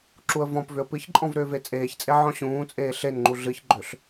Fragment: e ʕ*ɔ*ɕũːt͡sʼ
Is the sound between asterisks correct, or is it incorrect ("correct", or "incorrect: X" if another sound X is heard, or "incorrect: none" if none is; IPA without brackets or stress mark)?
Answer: incorrect: ɔ̃